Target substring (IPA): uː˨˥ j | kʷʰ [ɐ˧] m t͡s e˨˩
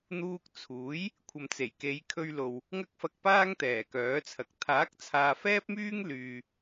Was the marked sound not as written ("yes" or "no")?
yes